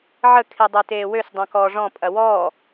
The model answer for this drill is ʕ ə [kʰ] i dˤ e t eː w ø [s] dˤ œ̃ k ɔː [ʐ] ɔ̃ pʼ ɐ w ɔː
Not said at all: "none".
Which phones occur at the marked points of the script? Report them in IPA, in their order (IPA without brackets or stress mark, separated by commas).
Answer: kʰ, s, ʐ